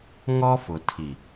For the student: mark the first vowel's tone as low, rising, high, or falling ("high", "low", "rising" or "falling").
high